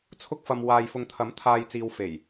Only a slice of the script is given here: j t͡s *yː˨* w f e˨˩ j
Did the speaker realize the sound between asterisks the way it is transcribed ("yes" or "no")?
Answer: no